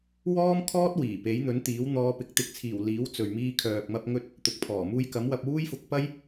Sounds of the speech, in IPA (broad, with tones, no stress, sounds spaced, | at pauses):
w ɔː˥ m kʰ ɔː˥ t̚ w iː˨˩ p e˨˥ j n̪ ɵ˨˥ n t̪ iː˨˥ w n̪ ɔː˧ p ɪ˨˥ k̚ t̪ ɪ˨˥ k̚ t͡sʰ iː˨˩ w l iː˨˥ w t͡s ɵ˨ ɥ m iː˧ kʰ œː˨ k̚ m ɐ˧ p̚ ŋ ɵ˧ t̚ | t̪ ʊ˨ k̚ pʰ ɔː˨˩ m uː˧ j k ɐ˨˥ m w ɐ˧ p̚ w uː˥ j f ʊ˧ k̚ p ɐ˥ j